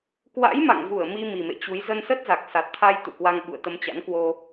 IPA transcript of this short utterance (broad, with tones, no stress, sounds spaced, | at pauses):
k w a̰˧˥ j m a̰˧˨ ŋ v u˧˩ ə̯ m i˧ m i˨˩ m ḛ˧˨ t͡ɕ u˨˦ j z ə˧ n s ə˦˥ t̚ z a˨˩ k̚ s a˨˩ t̚ t̪ʰ a˧ j t̪ ṵ˧˨ k w a˧ ŋ ɓ ṵ˧˨ ə̯ t̪ ə˧ m t͡ɕ a̰˧˥ n k w o˧